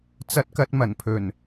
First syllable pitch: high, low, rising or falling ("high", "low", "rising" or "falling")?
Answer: high